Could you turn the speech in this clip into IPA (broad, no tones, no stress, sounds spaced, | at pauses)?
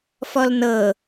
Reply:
f ɔ l n ɤ